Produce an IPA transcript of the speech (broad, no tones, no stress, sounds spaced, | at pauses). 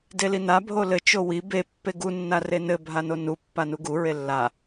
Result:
d e l i n a bʱ o l ɘ t͡ʃ o w i b e pː e ɡ u nː a r e n ɘ bʱ a n o n u pː a n u ɡ u ɹ e lː a